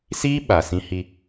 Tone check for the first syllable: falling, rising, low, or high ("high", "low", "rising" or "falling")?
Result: high